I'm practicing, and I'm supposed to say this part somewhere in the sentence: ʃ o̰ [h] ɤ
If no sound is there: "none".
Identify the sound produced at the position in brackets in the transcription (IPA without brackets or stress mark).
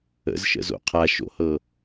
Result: h